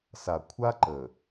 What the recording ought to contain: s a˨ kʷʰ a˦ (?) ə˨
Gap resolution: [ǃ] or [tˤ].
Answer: ǃ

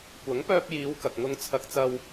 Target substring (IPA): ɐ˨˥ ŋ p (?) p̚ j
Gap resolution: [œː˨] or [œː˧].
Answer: œː˧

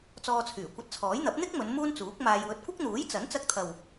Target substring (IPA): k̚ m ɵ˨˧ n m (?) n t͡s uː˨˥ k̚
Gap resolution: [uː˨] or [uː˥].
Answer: uː˥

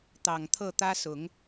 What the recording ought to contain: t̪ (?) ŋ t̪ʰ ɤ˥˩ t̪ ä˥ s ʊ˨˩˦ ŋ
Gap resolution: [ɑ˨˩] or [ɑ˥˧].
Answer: ɑ˨˩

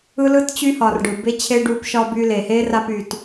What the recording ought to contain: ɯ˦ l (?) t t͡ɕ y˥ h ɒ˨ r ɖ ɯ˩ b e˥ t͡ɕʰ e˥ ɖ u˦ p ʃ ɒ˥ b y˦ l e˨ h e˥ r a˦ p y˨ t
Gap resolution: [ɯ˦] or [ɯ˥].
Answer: ɯ˥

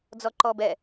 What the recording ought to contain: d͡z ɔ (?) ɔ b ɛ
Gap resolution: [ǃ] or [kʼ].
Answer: ǃ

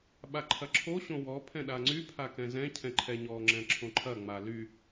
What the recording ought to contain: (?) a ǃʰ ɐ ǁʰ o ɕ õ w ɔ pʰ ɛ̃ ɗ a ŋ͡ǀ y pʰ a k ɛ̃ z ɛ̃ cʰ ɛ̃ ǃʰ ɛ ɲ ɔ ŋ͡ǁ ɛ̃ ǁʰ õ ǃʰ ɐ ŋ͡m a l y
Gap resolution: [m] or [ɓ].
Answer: ɓ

